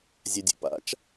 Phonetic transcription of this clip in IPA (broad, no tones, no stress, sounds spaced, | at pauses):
zʲ a dʲ ə̰ p a̰ t͡ʃ